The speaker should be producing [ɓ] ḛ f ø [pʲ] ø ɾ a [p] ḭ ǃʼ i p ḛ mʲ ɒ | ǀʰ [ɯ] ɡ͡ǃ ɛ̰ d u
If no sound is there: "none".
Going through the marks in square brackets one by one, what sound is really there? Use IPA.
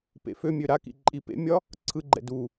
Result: p, mʲ, k, ɯ

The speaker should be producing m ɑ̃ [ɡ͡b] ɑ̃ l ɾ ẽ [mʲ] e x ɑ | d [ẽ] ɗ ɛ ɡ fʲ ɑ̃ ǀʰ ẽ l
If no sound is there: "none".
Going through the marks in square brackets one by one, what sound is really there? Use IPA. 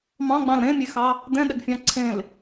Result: ɡ͡b, mʲ, ɛ̃

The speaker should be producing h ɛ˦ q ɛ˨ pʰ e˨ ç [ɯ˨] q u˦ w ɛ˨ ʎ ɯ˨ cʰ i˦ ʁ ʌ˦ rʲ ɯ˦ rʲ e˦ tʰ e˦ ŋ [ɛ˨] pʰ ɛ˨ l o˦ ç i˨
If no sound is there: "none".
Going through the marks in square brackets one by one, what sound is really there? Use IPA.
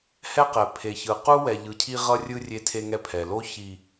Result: ɯ˨, ɛ˦

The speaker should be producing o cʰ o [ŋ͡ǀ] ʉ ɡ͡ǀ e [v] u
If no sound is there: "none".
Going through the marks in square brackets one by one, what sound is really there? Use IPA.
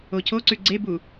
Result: ǀ, b

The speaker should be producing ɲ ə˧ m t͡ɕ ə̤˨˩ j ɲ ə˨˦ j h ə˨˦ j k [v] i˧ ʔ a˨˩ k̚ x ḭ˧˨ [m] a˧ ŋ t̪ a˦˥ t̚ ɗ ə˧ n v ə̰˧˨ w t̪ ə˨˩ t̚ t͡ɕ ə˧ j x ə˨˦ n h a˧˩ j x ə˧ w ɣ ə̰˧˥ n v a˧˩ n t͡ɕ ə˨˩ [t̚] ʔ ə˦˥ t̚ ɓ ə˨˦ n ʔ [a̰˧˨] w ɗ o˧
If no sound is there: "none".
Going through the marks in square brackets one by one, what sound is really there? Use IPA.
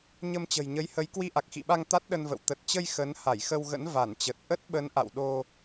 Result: w, ɓ, t̚, a̰˧˨

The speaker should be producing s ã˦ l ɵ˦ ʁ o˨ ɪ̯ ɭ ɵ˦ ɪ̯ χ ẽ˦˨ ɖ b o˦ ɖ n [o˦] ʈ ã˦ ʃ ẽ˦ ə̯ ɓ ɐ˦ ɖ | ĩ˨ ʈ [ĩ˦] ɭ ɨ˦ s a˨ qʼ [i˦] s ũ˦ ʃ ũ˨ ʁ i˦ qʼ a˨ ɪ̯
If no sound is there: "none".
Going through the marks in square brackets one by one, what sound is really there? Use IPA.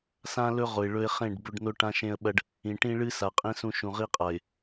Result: o˦, ĩ˦, ĩ˦

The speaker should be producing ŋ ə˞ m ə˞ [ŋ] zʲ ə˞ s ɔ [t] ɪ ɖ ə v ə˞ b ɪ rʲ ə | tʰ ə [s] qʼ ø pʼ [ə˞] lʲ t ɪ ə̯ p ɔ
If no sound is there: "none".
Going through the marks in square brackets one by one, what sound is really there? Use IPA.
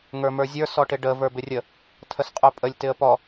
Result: none, ʈ, s, ə

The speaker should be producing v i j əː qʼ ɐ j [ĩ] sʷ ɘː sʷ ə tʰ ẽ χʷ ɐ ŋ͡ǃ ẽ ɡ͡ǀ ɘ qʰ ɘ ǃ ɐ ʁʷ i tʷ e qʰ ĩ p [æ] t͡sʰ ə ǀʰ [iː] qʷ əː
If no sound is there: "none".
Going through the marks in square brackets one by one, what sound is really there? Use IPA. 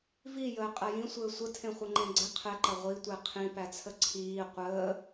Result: ĩ, æ, iː

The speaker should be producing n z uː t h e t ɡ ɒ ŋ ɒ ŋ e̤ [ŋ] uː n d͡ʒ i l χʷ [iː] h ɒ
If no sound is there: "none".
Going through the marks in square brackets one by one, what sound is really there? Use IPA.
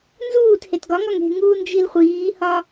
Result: ŋ, iː

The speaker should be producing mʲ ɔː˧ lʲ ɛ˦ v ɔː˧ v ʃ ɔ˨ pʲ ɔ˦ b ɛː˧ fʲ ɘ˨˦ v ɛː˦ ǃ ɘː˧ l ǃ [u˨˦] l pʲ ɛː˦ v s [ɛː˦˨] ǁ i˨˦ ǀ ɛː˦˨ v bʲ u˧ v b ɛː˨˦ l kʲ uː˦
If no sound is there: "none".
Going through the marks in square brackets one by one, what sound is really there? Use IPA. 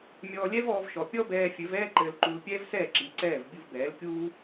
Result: u˧, ɛː˦˨

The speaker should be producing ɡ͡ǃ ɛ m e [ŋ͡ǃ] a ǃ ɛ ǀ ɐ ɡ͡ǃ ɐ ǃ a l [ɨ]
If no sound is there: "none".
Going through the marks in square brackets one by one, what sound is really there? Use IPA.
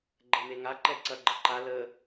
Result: ŋ, ə

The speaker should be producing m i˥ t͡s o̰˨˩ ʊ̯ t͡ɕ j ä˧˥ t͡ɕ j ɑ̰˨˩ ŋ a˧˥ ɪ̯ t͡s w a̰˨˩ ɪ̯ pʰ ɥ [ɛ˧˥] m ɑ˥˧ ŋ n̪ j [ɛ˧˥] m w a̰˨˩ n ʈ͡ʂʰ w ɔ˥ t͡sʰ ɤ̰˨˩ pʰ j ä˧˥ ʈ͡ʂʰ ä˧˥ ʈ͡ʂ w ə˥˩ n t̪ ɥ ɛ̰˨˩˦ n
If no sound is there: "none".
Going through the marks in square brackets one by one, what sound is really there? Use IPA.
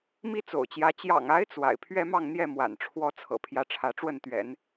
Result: ɛ˥, ɛ˥˩

